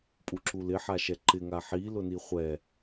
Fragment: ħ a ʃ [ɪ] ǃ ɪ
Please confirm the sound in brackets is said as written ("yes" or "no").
no